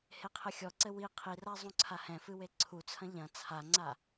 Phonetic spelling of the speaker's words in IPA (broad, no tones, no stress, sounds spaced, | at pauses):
h e qʰ ɘ xʲ ɔ ǀ ɘ w i qʰ i r a zˤ ũ ǀʰ a h ɛ̃ f ɨ w e ǀʰ u t͡sʰ ɐ̃ ʎ ɐ̃ t͡sʰ a ŋ͡ǀ a